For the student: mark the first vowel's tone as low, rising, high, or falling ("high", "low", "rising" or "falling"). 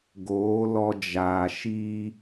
rising